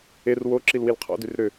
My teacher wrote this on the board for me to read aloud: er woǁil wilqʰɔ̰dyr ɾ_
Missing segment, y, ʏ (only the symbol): ʏ